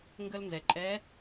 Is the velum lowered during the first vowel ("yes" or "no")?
no